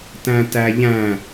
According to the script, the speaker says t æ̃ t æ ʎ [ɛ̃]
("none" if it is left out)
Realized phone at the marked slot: æ̃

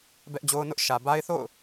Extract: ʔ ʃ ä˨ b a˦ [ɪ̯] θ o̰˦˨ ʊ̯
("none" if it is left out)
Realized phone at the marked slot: ɪ̯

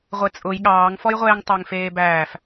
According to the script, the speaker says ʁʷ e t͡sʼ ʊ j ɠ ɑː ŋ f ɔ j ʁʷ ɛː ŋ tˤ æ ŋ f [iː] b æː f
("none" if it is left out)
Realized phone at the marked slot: eː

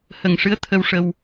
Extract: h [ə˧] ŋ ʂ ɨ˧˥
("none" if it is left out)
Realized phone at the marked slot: ə˨˩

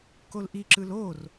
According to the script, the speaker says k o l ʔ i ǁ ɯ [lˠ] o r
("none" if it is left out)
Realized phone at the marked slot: l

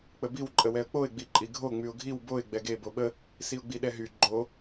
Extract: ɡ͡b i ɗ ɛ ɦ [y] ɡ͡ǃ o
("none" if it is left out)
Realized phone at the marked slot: y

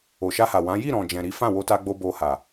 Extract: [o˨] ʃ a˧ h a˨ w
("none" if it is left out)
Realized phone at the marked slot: o˨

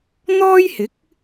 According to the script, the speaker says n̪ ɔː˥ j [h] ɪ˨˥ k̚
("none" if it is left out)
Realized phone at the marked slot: h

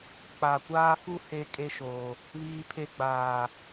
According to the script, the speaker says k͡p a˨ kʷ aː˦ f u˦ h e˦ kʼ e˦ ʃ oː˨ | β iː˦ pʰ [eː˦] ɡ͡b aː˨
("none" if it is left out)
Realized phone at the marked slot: e˦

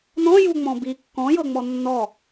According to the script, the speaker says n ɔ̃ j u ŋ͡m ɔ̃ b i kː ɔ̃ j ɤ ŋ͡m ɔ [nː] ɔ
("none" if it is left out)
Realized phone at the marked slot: nː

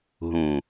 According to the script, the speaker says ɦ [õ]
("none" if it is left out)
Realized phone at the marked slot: ũ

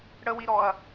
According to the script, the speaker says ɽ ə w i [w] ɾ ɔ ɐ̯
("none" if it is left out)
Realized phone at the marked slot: none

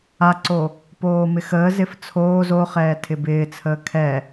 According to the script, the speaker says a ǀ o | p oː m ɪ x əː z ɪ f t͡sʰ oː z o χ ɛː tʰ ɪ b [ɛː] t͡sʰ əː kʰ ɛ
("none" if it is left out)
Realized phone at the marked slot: ɪː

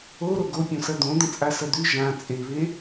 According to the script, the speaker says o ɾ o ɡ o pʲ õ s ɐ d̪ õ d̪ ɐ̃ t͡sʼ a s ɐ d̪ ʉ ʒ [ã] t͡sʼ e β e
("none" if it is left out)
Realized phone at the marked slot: ã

